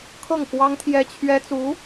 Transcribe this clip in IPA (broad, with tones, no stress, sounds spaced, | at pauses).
kʰ ɤ˥˩ ŋ k w ɑ˥ ŋ t̪ʰ j ɛ˥ t͡ɕʰ ɥ ɛ˥ t͡s u˧˥